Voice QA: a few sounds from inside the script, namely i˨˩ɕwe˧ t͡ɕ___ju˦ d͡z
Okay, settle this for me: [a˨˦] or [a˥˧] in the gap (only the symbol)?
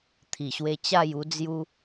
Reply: a˥˧